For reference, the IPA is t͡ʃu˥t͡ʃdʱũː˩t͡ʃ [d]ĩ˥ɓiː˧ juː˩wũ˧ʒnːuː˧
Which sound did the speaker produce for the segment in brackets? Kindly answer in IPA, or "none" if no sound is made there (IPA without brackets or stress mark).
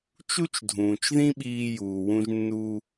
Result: ð